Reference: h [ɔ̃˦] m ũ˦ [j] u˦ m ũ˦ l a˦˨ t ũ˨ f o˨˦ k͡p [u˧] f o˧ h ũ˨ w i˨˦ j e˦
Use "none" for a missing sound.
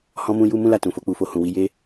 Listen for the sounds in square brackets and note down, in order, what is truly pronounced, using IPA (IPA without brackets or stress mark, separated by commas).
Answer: ɔ̃˦, j, u˧